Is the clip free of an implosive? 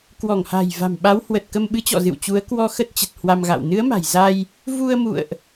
no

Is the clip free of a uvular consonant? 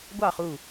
no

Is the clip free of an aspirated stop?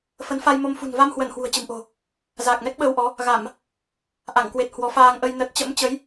yes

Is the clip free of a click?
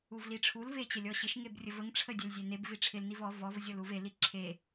no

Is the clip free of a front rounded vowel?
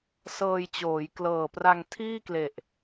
yes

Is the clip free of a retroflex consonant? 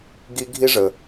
no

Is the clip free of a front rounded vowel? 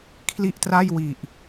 yes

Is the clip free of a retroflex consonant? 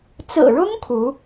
no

